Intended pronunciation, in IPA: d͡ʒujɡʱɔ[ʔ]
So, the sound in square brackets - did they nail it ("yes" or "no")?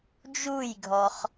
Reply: no